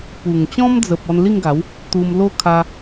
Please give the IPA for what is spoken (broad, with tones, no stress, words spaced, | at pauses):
pu˨˩ŋ t͡ɕɔ̃˦md͡zə˨p̚ ɔ˧nli˥˧ŋɡa˨˦w | t̪u˧mlo˦ kʰa˦